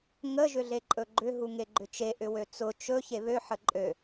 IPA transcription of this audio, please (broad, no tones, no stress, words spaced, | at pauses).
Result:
ŋə ʒʏɮeǃʼɵɡ͡ǃʏ ɦuŋeɡ͡ǃʏt͡ʃe ʔʏwøt͡sʊ t͡ʃɵ çeβø ħəǃʼø